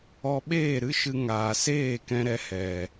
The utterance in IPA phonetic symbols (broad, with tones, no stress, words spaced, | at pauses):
ɔ˧ɓeː˦˨ɾɨ˦ʃɨ˧ ŋaː˨seː˦˨kɛ̃˧ɾɛ˧ hɛ˨